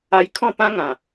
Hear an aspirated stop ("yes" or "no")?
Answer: yes